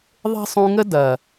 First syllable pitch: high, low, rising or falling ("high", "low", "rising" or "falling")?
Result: high